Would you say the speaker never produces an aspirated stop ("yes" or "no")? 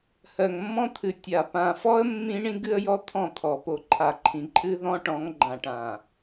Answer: no